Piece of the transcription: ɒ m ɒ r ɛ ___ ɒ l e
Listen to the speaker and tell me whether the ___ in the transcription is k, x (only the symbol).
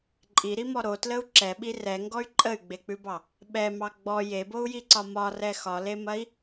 x